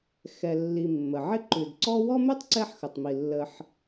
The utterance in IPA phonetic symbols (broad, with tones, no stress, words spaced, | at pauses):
xɛ˨ lːi˨mːə˩ʕɪ˥ ǃʉ˩dǀɔ˦wɔ˥mʉ˥tˤ ǀɛ˦ħxə˩tˤmi˩ lːə˨ħ